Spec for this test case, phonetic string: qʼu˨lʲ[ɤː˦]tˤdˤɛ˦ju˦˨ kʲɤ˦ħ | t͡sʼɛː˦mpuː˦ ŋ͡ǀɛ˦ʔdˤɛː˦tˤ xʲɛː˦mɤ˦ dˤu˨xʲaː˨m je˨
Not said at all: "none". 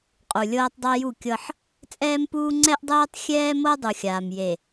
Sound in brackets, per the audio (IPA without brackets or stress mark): ɤː˦